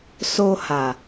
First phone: s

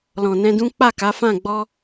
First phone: l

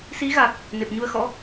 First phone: s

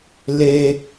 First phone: l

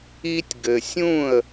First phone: i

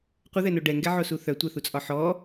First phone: qʷ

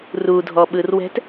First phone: r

